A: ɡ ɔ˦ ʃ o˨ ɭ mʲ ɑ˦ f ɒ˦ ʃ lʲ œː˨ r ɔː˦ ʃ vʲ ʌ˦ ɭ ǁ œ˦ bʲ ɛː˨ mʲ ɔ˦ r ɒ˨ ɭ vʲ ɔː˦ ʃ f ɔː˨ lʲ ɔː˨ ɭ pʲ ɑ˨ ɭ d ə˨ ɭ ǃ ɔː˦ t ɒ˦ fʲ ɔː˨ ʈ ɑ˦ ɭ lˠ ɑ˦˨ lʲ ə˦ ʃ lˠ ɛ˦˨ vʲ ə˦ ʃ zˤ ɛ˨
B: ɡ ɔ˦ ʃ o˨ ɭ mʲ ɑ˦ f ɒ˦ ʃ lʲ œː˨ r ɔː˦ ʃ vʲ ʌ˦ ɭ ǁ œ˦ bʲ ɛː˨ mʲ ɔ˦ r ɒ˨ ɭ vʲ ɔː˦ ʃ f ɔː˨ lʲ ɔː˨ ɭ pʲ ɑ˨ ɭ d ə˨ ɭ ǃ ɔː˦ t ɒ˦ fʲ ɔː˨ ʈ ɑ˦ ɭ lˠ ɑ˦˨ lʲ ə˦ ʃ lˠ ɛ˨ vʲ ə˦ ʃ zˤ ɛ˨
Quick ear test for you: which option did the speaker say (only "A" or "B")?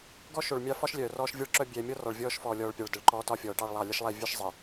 A